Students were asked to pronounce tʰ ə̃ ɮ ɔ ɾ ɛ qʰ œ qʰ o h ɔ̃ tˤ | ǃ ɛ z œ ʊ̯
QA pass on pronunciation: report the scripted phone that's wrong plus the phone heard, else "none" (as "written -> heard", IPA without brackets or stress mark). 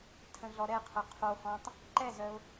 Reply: none